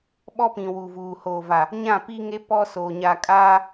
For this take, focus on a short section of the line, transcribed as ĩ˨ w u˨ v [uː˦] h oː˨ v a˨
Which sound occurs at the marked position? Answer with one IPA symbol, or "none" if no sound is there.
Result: uː˨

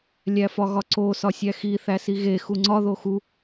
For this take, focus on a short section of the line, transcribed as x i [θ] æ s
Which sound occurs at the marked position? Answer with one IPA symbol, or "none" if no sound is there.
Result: θ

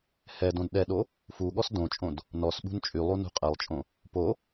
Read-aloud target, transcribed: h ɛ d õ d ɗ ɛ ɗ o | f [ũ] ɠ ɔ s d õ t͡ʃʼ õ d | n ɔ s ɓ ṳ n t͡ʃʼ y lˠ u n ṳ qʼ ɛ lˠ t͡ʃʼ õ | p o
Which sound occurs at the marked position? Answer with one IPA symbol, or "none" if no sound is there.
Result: u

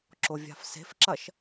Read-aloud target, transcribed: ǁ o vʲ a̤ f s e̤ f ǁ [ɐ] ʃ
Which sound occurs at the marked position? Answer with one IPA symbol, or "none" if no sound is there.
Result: ɐ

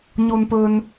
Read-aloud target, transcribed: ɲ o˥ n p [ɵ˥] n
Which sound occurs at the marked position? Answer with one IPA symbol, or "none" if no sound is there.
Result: ɵ˥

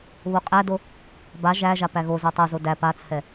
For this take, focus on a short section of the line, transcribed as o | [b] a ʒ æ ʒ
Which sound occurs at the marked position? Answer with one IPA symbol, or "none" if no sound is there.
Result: b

